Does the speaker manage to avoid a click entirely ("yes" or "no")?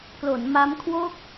yes